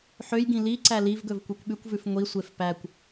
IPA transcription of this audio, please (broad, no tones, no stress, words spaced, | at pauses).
ħøjɡĩ liǀæ livɡɵv kʷekʷɓʉkʷvʉf ŋʷisʷef pækʷ